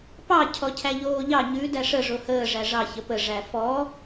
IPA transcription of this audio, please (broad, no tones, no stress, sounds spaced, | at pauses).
p ɑ cʰ ɔ cʰ æ ʎ oː ʎ ɑ ɲ ʉ d æ ʂ ə ʐ o h əː ʐ æ ʐ ɑ ç ə p ə ʐ æ f ɔ